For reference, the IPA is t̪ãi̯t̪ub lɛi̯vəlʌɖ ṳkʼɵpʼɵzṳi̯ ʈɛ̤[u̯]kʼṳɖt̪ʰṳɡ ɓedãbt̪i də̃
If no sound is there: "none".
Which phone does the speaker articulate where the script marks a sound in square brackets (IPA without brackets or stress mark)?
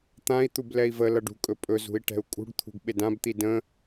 u̯